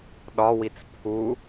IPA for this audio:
ɗ ɒ w i t͡s pʰ u

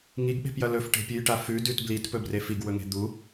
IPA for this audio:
ŋ i ɡ ɓ e̤ p j ɐ l ɵ f ʈ e̤ pʲ ʉ j ʈ a f ʉ d ʉ t b l i t p ɵ b r e f i ɡ w ɵ ŋ e̤ d̪ u

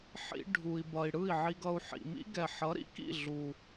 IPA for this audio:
ħ ḭ˧ ɖʱ u˨ i̯ b ʌ˨ i̯ ɽ ɯ˦˨ i̯ ʕ i˧ ɡ ʌ˧ u̯ ħ ḭ˨ m ḭ˦ ɡ ɛ˨ ħ ʌ˨˦ ɾ ḭ˦ k ḭ˦˨ ɮ u˨

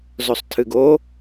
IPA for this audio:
z o sˤ tʰ ɨ ɡ o

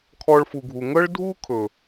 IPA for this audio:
kʰ ɔ˧ ɭ f u˨ ɡʱ u˨ ŋ ɤ˦ ɭ dʱ u˦ kʰ ɵ˨

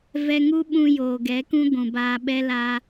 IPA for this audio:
v ɛ˧ ŋ u˦ ɓ ũ˧ j oː˨ ɡ ɛ˨˦ k ũ˦ ɡʷ ũ˨ b aː˧ ɓ ɛ˦ l a˦

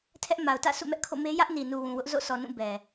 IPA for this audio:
tʰ ɛ˦ ʔ m a˨ ʊ̯ t ä̰˦˨ s ṵ˦˨ m ɛ˦ ʔ kʰ o̰˦˨ m e˦ j ä˦ ʔ n i˨ n u˨ w ũ˨ w ʊ˦ ʔ z o̰˦˨ s ɔ˨ n ũ˦˨ b ɛ˨

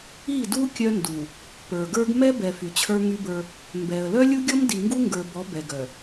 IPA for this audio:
i˦˨ d u˦ kʲ œ˦ n d u˨ | p ə˞˨ ɡ ə˞˦ ɡ m ɛ˦ b ɛ˨ f y˨ t͡ɕʰ ə˞˦ ŋ y˦ b ə˞˦ | m b ɛ˨ ə̯ l œ˦ lʲ u˦ ɡʲ ɔ˦ m d i˨ ŋ ɡ u˦ ŋ ɡ ə˞˨ b ɔ˨˦ b ɛ˨ ɡ œ˨

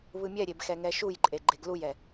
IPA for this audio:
β ɯ mʲ ɛ ɾʲ e b x ɛ ŋ ɛ ʃ u j ǃʼ e ɡ͡ǃ e ɡ l u j ɛ

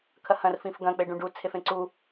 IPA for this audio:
kʰ ɐ h ɐ̃ r f ĩ f ɡ ɐ̃ k͡p e ɖ ũ ɖ u t͡sʰ e f ẽ ǀ u

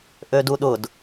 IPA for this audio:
ʔ ø d u ɗ ʊ d

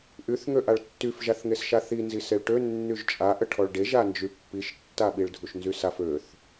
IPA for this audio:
ʔ y θ ŋ ø ʔ a ɭ tː y f ʒ a θ ŋ e s ʃ a θ i n z i s e ɭ ʈ ø nː y ʒ t͡ʃʼ a ʔ ə ʈʰ ɔ ɭ ɖ e ʒ a n d͡ʒ y pː i ʃ tː a ɓ i ɭ dʱ u ʃ n z y s a f ø θ

